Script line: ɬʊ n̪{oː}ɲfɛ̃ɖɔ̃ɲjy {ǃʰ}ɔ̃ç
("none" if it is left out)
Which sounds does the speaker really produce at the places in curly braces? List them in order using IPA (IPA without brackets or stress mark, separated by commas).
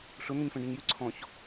o, ǀʰ